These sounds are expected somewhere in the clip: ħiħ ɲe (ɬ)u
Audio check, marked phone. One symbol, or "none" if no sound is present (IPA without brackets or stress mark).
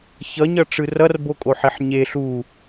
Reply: ɬ